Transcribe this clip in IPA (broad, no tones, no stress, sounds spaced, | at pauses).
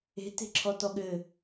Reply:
e̤ t e̤ ǁʰ ɔ t ɔ ɠ ɘ